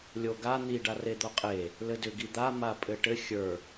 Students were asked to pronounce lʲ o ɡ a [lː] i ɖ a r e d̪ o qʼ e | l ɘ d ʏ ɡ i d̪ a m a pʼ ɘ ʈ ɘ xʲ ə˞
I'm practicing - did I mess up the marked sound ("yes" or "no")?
yes